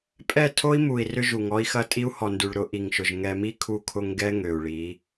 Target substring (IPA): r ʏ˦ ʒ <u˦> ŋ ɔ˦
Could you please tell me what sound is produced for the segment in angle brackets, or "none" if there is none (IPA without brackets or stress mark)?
u˨